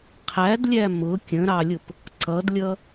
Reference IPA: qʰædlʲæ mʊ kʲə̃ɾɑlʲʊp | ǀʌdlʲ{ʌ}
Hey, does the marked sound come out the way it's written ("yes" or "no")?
yes